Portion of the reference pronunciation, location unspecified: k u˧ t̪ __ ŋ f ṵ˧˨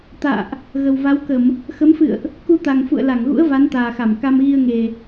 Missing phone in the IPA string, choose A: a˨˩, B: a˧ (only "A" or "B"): A